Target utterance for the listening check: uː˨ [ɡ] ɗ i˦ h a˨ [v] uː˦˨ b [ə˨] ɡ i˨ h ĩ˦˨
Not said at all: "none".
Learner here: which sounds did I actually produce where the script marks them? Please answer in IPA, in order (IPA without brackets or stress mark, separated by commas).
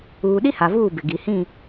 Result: none, v, ɪ˨